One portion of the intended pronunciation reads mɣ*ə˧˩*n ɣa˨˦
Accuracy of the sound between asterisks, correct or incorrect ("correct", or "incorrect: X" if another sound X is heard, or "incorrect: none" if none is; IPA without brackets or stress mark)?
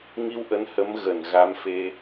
correct